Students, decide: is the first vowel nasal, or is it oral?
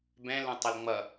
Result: nasal